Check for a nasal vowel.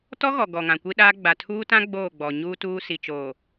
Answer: present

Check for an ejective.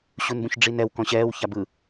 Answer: absent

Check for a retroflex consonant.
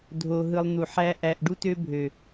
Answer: present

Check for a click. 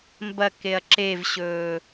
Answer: present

